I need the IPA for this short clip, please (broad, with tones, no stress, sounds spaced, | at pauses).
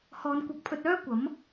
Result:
h ɔː˨˧ n kʷ ɐ˨˥ k̚ pʰ ɵ˧ t̚ œː˥ kʷ ɐ˨˥ m